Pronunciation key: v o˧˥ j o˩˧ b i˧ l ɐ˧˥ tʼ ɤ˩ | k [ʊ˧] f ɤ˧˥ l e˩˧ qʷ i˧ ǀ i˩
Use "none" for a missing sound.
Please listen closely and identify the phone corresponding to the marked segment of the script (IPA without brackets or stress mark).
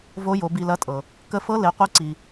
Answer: ə˧